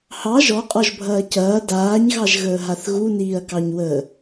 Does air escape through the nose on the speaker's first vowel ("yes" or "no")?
no